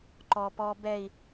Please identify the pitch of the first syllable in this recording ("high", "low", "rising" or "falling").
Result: low